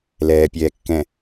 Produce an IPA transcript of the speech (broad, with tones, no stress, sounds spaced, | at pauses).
l ɛː˨ pʲ ɛː˨ kː ɛ̃˨